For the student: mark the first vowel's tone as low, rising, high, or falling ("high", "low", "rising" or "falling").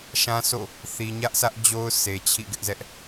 high